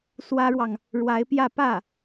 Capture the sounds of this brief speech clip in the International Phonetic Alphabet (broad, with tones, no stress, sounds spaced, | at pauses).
s w ä˥ ɻ w ɑ˨ ŋ | ɻ w a˧˥ ɪ̯ p j ä˥˧ p ä˥˩